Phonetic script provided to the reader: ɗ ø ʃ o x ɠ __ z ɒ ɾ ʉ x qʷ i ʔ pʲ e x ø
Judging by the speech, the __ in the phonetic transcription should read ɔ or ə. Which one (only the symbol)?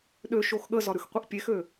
ə